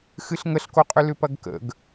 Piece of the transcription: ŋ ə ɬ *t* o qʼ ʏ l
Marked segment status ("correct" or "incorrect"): incorrect